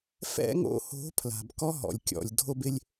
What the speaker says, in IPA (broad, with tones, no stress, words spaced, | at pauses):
fɛ̰˦ŋo̰˧ho̤˨˦ pʰla̤˨bkɔ˦ɦɔ̰˨lʲ kʲɔ̰˨lʲ dʱo˧bɪ˧lʲ